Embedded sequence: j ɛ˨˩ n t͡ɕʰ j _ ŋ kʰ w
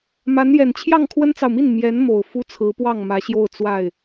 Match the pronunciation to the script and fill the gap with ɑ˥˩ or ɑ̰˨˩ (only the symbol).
ɑ˥˩